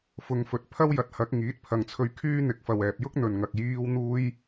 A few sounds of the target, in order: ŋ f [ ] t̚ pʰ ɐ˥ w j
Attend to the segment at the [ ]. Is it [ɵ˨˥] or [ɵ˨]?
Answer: ɵ˨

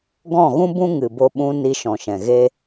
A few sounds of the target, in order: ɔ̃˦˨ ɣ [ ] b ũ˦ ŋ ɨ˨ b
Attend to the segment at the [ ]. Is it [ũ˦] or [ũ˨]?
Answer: ũ˦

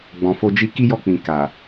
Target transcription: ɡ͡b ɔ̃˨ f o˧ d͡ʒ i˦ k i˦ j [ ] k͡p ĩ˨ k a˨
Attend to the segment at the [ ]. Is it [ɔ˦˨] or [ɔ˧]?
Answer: ɔ˦˨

